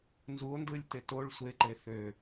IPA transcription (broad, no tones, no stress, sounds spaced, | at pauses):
n z u o̯ n d ɯ lʲ t e t o ɭ sʷ e ǃ e θ ø